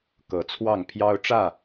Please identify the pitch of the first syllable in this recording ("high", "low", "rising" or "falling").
rising